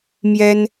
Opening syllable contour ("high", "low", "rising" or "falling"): high